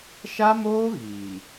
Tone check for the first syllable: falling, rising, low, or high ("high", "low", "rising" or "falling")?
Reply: high